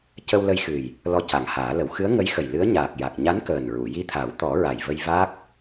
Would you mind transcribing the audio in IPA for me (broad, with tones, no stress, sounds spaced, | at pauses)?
c ə˧ w l ə˧ j x ɨ˨˩ j | l ɔ˧ c a˨˩ ŋ h aː˨˩˦ l ə˨˩˦ w x ɨ˧˥ ə̯ ŋ ə˧˥ j x ə˨˩ j l ɨ˧˥ ə̯ ɲ aː˨˩ k̚ j a˨˩ k̚ ɲ a˧˥ n k əː˨˩ n ɹ u˨˩˨ j i˧ t̪ʰ a˨˩˦ w t̪ ɔ˨˩˦ ɹ a˨˩ j v ə˧ j v a˦˥ k̚